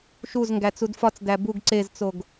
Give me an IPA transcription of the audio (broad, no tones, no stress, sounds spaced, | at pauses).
ʃ u z ŋ ɡ æ t͡s u d f ɒ t͡s d æ b u ɡ ǀ e z t͡s o ɡ